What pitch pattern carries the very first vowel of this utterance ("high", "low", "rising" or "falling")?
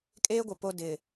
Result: high